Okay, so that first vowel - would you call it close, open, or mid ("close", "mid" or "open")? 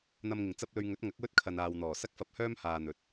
open